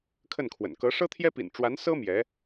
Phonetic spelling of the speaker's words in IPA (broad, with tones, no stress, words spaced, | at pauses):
kʰə˥˩nkʰwə̰˨˩n kɤ˧˥ʂɤ˥t̪ʰjɛ˥pḭ˨˩n ʈ͡ʂwa˧˥nsɤ˥ mjɛ˧˥